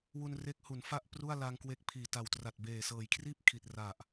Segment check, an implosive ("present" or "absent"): absent